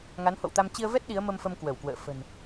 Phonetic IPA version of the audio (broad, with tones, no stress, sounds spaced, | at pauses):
ŋ a˨˦ n h o̰˧˨ w t̪ a˧ m t͡ɕ i˧ ə̯ v ɛ˦˥ t̚ ɗ i˨˦ ə̯ m ə˧ m f ə˧ m k w ə˧˩ w k w ə̰ː˧˨ f ə̤˨˩ n